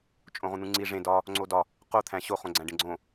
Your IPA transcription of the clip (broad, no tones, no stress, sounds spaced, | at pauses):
t͡ʃʼ õ ʁ ũ n̪ ũ ŋ͡ǀ i ʐ ẽ d ɒ | ŋ͡ǀ o d ɒ | q o t̪ʰ æ̃ ɕ o χ õ ɡ͡ǀ æ̃ ɖ ẽ ɡ͡ǀ õ